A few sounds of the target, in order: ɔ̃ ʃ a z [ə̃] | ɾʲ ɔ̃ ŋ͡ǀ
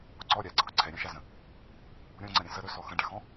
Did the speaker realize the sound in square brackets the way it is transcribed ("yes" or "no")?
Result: yes